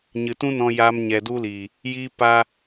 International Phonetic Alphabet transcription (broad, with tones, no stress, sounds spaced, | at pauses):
ɲ ɨ˨ t ũ˦ n ɔ̃˧ j aː˧ m ɲ ɛ˨ d u˦ l iː˨ | j iː˦ p aː˦